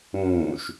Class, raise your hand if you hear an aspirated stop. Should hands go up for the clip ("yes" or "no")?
no